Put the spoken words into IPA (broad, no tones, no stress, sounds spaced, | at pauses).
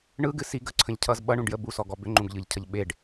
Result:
ɳ ɯ ɡ ɨ s i ɡ ə ǀʰ ə̃ ʎ cʰ ʌ z ɓ ʌ ɳ ũ ɖ j ə b u s ɔ ɡ ɔ b ʏ ŋ͡ǃ ũ ɡ ʎ ɯ ʎ cʰ ʌ ʎ ɓ e ɖ